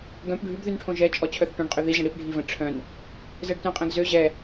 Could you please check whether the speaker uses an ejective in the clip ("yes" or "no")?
yes